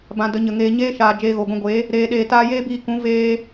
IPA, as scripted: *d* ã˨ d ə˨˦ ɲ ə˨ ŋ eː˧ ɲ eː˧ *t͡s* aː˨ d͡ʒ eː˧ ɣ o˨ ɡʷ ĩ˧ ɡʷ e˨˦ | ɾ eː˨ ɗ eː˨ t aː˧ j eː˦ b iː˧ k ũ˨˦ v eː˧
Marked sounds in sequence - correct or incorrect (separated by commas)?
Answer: incorrect, incorrect